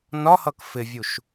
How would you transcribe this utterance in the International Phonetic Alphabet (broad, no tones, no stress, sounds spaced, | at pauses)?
n ɒ h ʌ k f ɪ vʲ u ʃ